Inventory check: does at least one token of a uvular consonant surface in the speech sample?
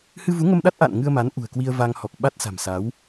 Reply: no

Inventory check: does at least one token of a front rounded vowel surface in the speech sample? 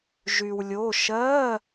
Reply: yes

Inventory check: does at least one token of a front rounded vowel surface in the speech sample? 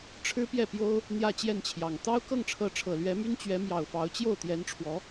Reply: yes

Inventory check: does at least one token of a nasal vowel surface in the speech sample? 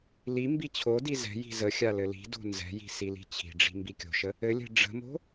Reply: no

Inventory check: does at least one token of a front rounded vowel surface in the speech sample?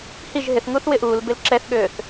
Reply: yes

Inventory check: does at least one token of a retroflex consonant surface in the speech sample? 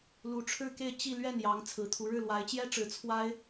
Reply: yes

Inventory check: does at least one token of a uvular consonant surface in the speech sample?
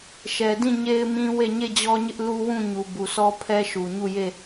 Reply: no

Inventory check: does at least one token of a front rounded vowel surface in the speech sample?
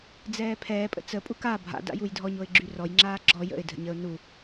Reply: yes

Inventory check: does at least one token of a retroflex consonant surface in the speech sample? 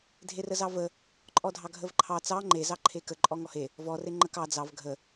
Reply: no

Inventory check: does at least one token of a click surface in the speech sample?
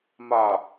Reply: no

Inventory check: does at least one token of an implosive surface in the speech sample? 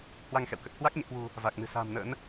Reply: no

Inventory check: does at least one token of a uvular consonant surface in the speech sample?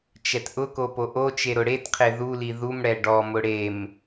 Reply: yes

